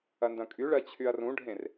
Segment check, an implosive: absent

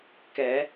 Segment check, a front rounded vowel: absent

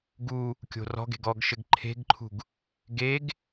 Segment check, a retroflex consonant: absent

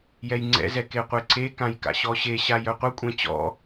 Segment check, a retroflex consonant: absent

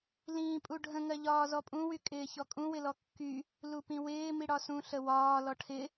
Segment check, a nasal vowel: present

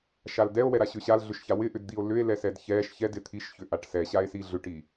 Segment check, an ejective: absent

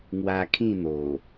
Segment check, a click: absent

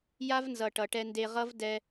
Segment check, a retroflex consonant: present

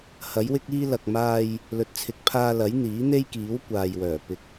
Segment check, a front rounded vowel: present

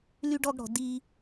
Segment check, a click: absent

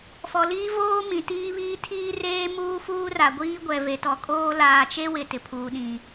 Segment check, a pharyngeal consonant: absent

